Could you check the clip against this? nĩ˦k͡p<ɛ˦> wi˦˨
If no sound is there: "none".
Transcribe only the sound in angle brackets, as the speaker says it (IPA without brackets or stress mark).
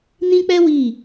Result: ɛ˦